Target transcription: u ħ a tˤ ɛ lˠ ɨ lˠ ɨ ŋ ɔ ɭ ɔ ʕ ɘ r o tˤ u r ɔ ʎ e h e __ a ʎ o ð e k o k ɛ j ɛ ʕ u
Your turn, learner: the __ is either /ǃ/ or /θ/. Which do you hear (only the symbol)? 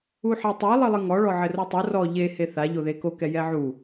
θ